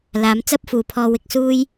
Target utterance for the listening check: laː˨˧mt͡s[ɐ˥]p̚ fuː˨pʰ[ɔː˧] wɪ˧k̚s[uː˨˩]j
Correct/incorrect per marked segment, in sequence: correct, correct, incorrect: uː˥

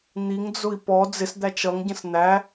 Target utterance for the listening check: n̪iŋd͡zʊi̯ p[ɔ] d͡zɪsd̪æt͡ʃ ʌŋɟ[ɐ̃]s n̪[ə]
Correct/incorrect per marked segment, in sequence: correct, incorrect: ə̃, incorrect: æ

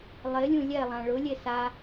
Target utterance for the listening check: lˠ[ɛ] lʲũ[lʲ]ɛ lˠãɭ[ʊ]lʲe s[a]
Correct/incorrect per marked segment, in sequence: incorrect: ɪ, correct, correct, correct

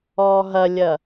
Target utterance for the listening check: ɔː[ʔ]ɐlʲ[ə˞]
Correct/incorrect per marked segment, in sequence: incorrect: ɦ, incorrect: ɐ

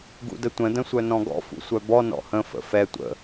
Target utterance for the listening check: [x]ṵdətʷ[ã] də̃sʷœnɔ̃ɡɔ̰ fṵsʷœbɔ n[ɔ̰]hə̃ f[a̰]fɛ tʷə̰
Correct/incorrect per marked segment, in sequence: incorrect: ɡ, incorrect: ə̃, correct, incorrect: ə̰

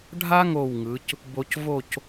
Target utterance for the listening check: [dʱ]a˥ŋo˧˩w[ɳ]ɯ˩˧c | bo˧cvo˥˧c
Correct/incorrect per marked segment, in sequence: incorrect: ɖʱ, incorrect: ŋ

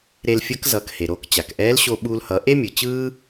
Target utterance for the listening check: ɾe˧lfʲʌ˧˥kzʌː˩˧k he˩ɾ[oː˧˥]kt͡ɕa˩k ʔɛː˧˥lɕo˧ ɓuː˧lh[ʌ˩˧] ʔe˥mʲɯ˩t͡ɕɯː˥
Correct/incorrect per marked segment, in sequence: incorrect: oː˧, correct

